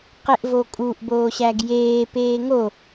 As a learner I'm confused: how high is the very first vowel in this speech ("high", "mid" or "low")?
mid